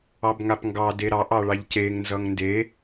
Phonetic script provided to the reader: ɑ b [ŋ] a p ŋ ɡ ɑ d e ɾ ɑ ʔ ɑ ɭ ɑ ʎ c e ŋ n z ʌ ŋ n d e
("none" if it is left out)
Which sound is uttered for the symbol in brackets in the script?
ŋ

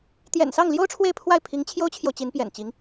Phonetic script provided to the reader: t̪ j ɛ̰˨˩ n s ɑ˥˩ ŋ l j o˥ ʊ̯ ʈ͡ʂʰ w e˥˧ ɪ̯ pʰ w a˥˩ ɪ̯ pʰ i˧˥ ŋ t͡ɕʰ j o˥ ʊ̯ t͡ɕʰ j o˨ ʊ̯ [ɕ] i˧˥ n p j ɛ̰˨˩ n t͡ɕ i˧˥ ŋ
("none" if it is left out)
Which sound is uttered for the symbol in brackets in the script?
t͡ɕ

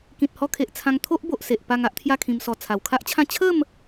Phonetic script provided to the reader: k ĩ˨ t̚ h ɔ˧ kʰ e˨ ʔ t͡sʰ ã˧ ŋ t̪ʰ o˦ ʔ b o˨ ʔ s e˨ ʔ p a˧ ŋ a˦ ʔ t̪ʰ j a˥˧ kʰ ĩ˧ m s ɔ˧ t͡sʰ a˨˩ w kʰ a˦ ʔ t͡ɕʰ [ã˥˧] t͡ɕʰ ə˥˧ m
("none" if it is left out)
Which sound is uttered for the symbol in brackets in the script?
ã˥˧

